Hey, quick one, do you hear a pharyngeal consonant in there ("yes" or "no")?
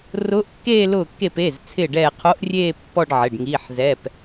yes